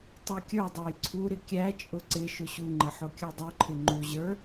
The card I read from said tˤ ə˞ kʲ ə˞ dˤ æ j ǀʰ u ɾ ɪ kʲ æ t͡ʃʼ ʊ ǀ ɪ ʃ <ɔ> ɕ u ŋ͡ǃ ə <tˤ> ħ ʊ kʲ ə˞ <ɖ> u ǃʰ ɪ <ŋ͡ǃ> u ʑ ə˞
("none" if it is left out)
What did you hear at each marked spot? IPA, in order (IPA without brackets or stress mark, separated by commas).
ʊ, none, dˤ, ŋ͡ǃ